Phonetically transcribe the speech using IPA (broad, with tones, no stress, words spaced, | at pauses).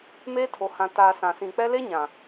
meː˦tʰo˨hã˨taː˨ sã˨sĩ˨k͡pɛ˦ le˦ɲã˨